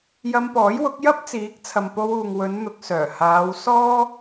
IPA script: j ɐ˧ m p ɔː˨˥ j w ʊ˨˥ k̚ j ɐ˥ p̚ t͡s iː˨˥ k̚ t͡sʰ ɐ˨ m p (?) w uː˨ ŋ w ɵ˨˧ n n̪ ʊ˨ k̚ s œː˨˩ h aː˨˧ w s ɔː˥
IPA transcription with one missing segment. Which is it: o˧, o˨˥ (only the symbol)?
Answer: o˧